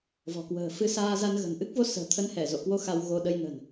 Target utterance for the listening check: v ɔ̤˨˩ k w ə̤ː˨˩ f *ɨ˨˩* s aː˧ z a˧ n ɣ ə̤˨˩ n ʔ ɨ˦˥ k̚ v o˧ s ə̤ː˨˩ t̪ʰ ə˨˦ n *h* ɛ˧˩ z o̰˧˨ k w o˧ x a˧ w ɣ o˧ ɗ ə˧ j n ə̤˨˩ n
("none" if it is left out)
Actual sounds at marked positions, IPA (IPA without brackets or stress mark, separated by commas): ɨ˧, h